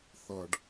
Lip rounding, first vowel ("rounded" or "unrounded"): unrounded